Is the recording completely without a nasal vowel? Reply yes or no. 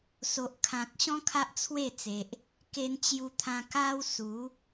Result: no